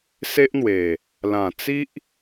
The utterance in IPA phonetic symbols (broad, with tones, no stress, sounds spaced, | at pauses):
s e˦ ʔ n̪ w e˨˩ | l ã˨˩ t͡s i˦ ʔ